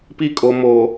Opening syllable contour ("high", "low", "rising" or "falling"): high